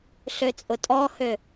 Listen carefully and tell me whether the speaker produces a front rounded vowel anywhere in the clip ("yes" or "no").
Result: yes